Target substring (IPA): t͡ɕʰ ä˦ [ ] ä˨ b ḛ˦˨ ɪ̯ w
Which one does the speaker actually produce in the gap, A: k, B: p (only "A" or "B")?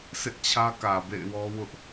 A